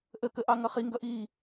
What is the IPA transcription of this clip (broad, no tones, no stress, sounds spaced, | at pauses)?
ʔ ə k ə ʔ ɑ ŋ ʌ χ i ŋ ɡ ʌ ʔ iː